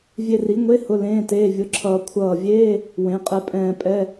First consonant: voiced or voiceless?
voiced